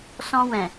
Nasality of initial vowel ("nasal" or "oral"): nasal